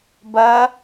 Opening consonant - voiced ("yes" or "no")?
yes